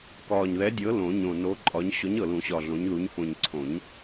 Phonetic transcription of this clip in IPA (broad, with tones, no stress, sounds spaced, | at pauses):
k ɒː˨˩ ɲ ð ɛ˨˥ dʲ ɤ˨˥ l õ˨˩˦ ɲ õ˨˩ n o˨˥ ǃʼ ɒ˨˥ ɲ ɕ ɔ˨˥ ɲ ɤ˨˩ l ũ˨˩˦ ɕ ɒ˨˩ ɮ õ˨˥ ɲ ð u˨˥ ɲ f õ˨˩ ɲ ǀʰ õ˨˩˦ ɲ